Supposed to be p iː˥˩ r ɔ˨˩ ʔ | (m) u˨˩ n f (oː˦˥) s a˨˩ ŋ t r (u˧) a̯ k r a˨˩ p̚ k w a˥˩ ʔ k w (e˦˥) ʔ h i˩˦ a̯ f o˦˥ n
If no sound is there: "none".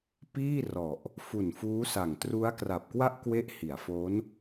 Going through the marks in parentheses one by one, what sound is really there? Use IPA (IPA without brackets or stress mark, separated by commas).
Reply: f, uː˦˥, u˦˥, e˦˥